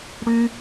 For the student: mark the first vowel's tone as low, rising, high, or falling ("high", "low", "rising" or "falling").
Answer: high